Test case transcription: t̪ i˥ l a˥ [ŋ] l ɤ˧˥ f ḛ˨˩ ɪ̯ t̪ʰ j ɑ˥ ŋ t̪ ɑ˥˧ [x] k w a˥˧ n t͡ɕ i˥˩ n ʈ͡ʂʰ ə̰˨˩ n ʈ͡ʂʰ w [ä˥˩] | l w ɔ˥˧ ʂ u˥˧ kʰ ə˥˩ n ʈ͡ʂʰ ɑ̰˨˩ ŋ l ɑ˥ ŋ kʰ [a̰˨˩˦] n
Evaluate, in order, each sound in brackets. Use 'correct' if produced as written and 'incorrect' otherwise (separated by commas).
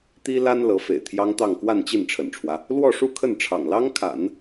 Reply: incorrect, incorrect, incorrect, correct